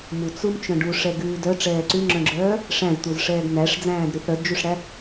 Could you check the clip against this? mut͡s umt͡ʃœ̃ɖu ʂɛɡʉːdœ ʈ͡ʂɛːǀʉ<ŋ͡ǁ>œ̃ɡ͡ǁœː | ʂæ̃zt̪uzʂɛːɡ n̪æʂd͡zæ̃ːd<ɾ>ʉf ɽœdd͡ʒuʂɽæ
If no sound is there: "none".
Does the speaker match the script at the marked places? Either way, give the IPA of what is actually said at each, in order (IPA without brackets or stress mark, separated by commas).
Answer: ŋ͡ǁ, ɾ